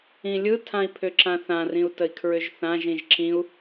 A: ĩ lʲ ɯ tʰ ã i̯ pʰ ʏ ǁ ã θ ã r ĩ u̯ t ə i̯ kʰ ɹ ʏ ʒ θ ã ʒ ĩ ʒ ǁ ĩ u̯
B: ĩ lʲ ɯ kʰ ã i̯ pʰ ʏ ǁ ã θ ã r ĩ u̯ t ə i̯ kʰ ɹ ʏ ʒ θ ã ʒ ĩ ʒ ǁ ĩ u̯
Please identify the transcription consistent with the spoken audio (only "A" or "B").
A